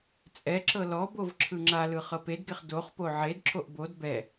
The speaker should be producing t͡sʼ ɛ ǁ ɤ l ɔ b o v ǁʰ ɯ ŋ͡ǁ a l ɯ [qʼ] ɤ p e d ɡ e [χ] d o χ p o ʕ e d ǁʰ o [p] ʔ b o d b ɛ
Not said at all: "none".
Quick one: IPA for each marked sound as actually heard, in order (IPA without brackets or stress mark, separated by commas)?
χ, χ, none